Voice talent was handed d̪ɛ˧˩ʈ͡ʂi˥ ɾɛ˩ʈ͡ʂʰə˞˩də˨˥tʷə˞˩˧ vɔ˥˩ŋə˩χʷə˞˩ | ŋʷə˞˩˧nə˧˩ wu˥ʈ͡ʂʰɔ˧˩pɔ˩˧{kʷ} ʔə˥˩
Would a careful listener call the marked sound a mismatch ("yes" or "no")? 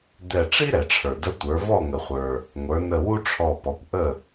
no